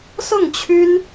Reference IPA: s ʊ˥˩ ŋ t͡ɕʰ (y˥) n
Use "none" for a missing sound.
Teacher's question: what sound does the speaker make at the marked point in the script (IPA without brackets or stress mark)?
y˥